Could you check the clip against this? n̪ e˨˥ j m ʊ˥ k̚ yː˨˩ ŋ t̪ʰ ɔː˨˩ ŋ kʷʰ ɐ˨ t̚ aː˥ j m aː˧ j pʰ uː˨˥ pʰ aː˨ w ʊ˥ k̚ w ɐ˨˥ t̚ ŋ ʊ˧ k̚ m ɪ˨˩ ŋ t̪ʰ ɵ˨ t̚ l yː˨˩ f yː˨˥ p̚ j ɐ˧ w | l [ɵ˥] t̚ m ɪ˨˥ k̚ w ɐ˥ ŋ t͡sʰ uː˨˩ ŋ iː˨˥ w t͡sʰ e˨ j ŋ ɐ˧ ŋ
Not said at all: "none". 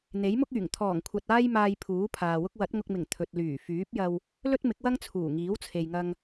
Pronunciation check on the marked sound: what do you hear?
ɵ˥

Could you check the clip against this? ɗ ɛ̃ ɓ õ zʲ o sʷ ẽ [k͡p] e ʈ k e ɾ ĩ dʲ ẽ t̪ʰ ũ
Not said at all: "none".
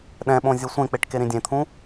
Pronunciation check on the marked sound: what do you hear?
k͡p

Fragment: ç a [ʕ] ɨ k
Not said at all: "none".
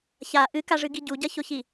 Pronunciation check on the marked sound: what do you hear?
ʔ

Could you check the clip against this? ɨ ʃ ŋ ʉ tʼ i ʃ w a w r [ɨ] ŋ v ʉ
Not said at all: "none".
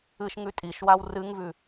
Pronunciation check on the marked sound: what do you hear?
ɨ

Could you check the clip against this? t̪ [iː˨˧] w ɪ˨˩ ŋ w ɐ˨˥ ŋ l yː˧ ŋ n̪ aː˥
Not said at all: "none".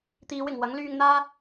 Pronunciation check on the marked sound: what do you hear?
iː˨˧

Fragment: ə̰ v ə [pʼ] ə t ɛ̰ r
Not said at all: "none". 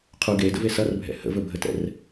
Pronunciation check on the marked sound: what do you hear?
bʱ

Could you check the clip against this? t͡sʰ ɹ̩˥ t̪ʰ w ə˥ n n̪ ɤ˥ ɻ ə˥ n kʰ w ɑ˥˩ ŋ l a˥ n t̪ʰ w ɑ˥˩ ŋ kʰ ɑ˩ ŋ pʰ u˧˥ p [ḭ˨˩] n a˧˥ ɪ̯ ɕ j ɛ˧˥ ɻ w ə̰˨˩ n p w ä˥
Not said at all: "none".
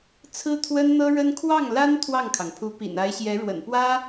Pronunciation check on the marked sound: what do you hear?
ḭ˨˩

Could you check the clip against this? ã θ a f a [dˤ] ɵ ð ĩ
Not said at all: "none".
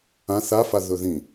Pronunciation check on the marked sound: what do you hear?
ð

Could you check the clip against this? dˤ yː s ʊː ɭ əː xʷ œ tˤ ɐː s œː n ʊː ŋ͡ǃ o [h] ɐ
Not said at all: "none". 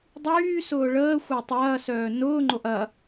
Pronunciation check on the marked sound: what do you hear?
ʔ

